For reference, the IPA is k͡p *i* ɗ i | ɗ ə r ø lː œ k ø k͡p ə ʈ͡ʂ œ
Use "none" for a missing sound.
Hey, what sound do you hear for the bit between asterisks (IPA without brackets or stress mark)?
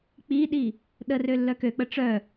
i